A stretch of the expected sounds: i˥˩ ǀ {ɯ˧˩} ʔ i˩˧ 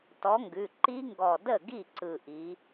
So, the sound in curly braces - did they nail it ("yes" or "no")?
yes